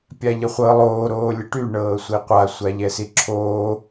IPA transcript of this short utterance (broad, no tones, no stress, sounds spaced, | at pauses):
pʲ a ʎ ə χʷ ɤ lˠ oː ɾ oː lʲ ə ʈ y ɳ ɤː sʷ i qʷ a sʷ a ʎ ɛ s i ǁʰ oː